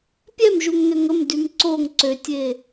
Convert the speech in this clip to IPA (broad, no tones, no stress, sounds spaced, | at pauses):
pʲ ɛ m ʒ u ŋ n ø ŋ ə m d y m ǀ o ŋ ǀ ø tʲ e